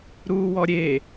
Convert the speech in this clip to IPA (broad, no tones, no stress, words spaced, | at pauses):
ɾuːwɔɾʲe